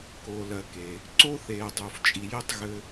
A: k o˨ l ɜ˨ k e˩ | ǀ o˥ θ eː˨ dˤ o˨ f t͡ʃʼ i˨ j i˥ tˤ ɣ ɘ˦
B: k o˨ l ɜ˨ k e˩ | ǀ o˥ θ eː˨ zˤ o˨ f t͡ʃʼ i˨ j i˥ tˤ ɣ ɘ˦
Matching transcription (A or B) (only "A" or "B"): A